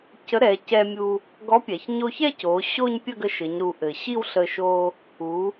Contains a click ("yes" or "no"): no